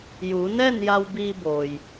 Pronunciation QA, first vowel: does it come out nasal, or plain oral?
oral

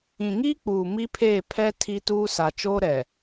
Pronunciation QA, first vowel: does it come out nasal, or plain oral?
nasal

